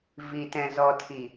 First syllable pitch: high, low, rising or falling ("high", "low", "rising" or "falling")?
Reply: low